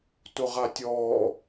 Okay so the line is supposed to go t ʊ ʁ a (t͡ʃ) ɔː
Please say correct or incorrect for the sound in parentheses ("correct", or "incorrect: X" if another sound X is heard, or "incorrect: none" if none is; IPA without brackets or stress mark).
incorrect: tʲ